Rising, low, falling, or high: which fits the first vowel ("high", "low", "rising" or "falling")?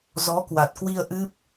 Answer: rising